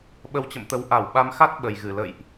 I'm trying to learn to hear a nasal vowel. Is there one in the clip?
no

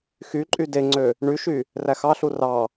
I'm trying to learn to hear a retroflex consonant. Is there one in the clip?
yes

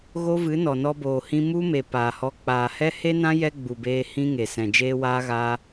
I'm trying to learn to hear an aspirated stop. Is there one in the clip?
no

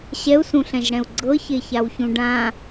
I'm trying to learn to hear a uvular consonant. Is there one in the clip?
no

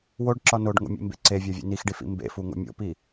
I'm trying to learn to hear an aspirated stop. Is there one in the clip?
no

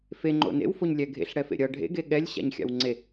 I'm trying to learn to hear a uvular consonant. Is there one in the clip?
no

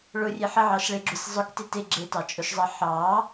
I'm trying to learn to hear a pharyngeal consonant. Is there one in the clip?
yes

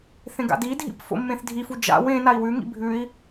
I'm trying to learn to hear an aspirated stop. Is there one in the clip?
no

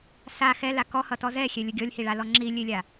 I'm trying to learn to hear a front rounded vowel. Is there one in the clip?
no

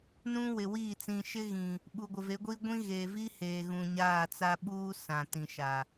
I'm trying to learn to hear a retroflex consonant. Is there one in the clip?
no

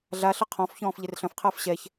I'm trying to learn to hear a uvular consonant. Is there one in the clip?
yes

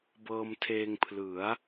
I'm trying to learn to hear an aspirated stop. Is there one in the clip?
yes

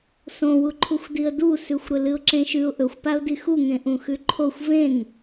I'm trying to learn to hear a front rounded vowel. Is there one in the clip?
no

